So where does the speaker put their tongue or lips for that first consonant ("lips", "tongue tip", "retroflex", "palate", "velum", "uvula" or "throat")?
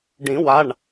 retroflex